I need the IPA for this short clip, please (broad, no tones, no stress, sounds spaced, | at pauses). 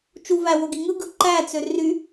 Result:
t͡ʃ u v æ w o ɡ i ŋ ɯ ɡ ɯ ǃ æ t͡s ø r y